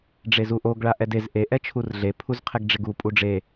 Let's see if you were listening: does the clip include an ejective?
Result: yes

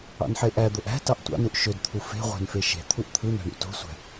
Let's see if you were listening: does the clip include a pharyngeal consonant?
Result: yes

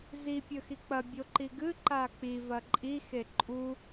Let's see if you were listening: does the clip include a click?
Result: yes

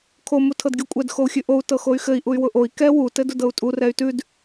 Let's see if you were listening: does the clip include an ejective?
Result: yes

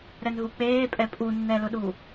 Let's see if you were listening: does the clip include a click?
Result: no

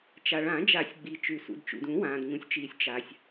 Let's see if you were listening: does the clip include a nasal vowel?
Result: yes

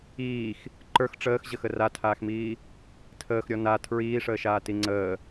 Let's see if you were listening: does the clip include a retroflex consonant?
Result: yes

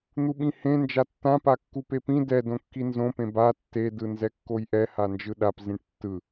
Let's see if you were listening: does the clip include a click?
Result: no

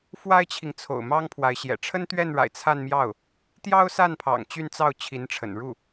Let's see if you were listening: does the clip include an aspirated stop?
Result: yes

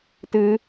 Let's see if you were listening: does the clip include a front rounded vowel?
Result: no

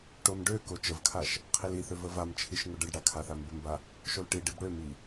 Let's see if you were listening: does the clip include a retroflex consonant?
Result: yes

